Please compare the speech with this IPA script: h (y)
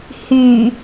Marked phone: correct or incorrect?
correct